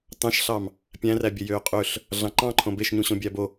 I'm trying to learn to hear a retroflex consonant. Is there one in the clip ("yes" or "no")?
no